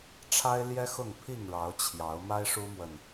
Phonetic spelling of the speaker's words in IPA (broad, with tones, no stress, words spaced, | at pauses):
ʈ͡ʂʰa˦ɪ̯ljɛ˦ xʊ˥˨ŋpʰi˥˨ŋɻɑ˨˦ʊ̯ t͡ɕʰjɑ˨˦ʊ̯ ma˦ɪ̯ʂu˦mwə˨n